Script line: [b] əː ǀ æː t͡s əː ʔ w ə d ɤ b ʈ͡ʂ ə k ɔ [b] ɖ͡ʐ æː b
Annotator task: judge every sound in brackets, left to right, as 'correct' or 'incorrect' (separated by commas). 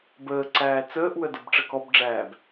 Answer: correct, correct